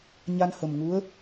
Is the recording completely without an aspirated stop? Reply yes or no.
yes